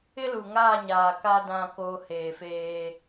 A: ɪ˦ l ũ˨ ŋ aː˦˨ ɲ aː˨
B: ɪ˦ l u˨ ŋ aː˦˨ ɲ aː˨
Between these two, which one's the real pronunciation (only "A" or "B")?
B